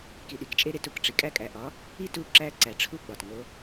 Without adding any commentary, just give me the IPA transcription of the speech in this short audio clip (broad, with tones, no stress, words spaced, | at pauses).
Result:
ki˩ɗi˩˧kt͡ʃʼe˧ɾe˩˧t u˩kʈ͡ʂi˩ kʼæ˧kʼæ˩ʔɒ˩˧ | i˥tu˧˥ǁæ˧˥ ǀæ˩ʈ͡ʂʰu˧˥ ɡ͡bɒ˩tŋo˩˧